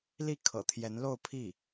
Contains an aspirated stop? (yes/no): yes